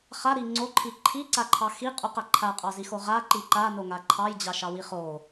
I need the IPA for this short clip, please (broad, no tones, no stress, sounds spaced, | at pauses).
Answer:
χ a ɾ i ŋ͡ǀ o ǃʰ i ǃʰ i ǀ a ǃʰ ɑ x i qʼ o q a ǃʰ a qʼ ɑ z i x o ʁ a ǃ i ǃ a n o ŋ a ǃʰ ɑ j d͡ʑ ɑ ʃ ɑ w i χ o